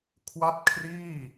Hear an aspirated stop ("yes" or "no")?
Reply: yes